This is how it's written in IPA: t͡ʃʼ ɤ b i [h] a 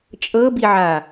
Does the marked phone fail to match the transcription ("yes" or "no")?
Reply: yes